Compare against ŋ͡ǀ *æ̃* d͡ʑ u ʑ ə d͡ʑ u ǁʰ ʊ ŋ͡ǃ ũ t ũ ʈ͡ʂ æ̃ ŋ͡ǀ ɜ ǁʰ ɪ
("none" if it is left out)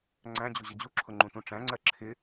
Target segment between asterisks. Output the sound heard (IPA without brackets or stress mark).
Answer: æ̃